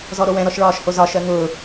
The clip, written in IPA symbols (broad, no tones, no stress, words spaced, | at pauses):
zɔɾowɛ̃ ɾɔʃɭɒːʃhozɒ ʃɜŋʊː